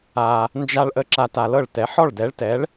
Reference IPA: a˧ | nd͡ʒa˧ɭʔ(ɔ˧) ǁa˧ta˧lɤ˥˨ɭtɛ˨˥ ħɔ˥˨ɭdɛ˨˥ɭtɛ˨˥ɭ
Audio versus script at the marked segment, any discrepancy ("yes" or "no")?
yes